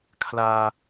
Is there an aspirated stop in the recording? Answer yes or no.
yes